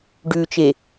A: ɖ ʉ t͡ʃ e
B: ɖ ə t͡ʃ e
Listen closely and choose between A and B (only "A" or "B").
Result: A